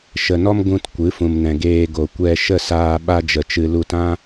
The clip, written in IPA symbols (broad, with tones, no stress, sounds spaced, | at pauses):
ʃ ə˨ n ɔ˦ m ɡ ũ˧ t kʷ ɨ˨˦ f ũ˨ m n ɛ̃˨ ɡ eː˧ ɡ o˨ kʷ ɛ˧ ʃ ə˦˨ s aː˧ ɓ a˦ d͡ʒ ə˧ t͡ʃ ɨ˦ l u˧ t ã˦